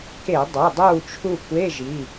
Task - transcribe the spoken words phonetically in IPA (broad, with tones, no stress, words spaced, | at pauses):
ke˧˩˧dˤu˩˧˩dˤuː˦˨t͡ʃʰu˦˨ kʷe˧˥˧ ʒi˩˧˩